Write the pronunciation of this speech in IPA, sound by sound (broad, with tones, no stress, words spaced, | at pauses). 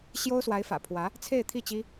ɕjo˥ʊ̯swa˧˥ɪ̯fä̰˨˩pʰwä˧˥ | t͡sʰe˥˧ɪ̯t̪ʰi˥˩t͡ɕi˥